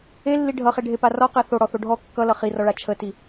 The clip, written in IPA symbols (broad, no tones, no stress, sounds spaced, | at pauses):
e lː i ɖʱ ʌ χ e ɖʱ e p a r ɔ q e θ o ɽ ɔ θ o ɖʱ ɔ kː ʌ l ʌ χ i r ɔ ɭ a t͡ʃʰ ə t i